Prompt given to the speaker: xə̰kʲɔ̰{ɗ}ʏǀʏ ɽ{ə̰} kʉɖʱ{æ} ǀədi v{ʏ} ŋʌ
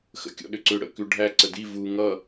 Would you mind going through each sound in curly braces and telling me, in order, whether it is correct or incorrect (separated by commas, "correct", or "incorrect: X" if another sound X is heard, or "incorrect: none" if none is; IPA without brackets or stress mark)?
correct, correct, correct, incorrect: u